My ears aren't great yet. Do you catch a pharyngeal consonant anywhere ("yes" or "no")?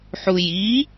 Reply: yes